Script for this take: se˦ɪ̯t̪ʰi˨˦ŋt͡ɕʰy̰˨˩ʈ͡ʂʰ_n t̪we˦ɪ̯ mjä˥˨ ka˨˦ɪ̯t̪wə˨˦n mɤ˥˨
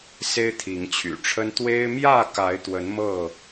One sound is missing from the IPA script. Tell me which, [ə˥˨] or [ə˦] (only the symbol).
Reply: ə˦